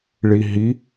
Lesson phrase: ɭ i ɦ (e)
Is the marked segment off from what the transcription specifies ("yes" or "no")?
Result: yes